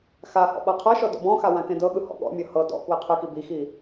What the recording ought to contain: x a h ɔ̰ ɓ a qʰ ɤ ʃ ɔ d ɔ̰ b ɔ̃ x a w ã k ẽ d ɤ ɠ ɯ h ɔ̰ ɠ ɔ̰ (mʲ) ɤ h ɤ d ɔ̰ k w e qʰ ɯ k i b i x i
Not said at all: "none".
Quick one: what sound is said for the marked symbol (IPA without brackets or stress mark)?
mʲ